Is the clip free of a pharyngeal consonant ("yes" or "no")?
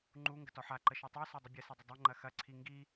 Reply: no